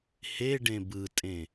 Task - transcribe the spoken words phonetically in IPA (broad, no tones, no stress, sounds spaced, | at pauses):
h e ɖ ẽ b ɯ tʼ ẽ